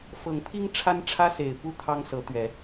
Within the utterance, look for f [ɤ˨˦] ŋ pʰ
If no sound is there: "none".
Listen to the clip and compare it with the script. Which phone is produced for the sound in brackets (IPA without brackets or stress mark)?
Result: ɤ˨˦